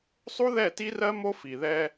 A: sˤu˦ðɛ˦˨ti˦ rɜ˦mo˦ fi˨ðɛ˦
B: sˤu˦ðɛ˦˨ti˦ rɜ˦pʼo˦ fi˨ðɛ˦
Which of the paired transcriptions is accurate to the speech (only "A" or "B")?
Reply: A